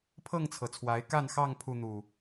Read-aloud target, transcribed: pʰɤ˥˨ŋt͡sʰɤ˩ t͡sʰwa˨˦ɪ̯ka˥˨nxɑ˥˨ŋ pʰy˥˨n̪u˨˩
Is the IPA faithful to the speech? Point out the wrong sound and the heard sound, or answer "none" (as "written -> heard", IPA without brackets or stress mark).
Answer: y˥˨ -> u˥˨